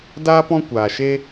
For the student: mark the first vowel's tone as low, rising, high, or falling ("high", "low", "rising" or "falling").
high